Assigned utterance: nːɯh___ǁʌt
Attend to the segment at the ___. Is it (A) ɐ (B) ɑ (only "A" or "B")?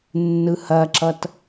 A